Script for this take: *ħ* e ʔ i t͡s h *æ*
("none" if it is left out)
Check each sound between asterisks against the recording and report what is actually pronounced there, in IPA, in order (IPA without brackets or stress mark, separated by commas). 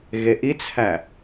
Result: ɣ, æ